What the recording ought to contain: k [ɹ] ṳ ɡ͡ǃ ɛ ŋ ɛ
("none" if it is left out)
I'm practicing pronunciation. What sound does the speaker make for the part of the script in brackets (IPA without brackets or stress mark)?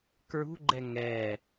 ɹ